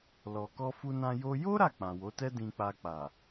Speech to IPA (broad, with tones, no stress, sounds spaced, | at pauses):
l ɔ˧ k ɔ˦ f u˦ n ã˦ j o˦ j o˦ ɾ a˦˨ k͡p ã˨ w o˨˦ t ɛ˦ d ĩ˧ k͡p a˧ k͡p a˨